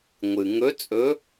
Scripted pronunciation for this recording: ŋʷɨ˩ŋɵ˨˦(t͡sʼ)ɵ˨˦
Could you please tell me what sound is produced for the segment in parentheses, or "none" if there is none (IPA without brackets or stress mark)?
t͡sʼ